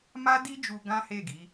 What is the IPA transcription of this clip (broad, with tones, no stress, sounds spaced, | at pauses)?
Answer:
m a˦ d i˦ d͡ʒ u˧ ɡ ã˦ h e˦˨ ɡ i˨˦